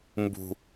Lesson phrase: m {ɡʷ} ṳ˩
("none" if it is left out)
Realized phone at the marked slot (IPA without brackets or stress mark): b